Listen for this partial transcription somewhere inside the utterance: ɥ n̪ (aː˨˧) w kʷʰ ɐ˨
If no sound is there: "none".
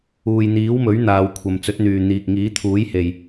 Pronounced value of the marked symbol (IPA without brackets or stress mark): aː˨